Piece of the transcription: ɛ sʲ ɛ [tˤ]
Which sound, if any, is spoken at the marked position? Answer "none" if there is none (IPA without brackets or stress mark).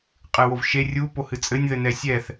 θ